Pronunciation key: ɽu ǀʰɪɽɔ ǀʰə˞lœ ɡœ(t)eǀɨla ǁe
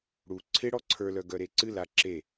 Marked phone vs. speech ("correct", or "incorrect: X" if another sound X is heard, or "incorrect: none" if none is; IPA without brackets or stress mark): incorrect: ɾ